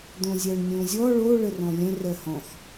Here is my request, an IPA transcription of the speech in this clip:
d̪õzʲɜɳnʲõzʲɔ ɭo ɭərɔ̃lʲə̃ rɜhɔ̃x

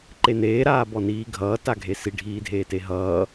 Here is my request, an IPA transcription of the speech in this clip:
ǃeneː ɾaːbɔniːɡʱʌː taɡʱesi ɖʱiːdʱeːteɦʌː

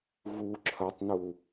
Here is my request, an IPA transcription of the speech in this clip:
vu ǁʰɐtˤnu

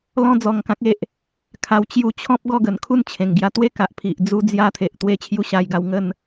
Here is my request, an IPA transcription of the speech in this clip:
lɔ̃˦d͡zɔ˧ŋ kã˦k̚e˦ʔ | kʰa˧w t͡ɕju˧t͡ɕʰɔ̃˦p̚ ɡɔ˥˧ɡə˨˩nkʰu˥˧n t͡ɕʰẽ˨˩ŋɡja˧t̪we˦ ka˨ʔpʰi˨ʔ d͡zu˧d͡zja˧ t̪ʰe˨ʔt̪we˧t͡ɕʰju˧ ɕa˧jɡa˧w ŋə˥˧n

